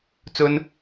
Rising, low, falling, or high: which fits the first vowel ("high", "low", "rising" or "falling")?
high